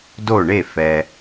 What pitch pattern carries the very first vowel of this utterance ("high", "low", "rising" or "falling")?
falling